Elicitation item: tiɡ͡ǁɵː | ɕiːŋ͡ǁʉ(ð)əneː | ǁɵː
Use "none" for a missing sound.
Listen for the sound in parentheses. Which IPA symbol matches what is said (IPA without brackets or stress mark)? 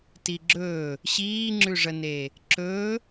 ʐ